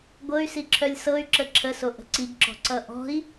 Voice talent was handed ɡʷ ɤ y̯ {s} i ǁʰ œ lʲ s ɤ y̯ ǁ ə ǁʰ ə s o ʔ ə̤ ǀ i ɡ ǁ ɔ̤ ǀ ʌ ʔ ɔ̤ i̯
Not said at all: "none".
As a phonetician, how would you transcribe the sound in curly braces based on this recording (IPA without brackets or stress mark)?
s